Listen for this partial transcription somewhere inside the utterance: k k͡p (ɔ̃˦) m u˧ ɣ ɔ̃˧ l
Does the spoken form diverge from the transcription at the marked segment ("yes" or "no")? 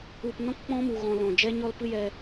no